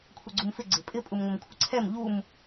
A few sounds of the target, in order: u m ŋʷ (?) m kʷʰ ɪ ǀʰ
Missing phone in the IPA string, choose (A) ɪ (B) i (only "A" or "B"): A